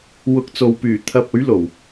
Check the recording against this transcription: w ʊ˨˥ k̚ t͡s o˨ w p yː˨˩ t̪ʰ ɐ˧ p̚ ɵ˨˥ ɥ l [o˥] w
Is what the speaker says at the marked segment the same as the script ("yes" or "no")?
no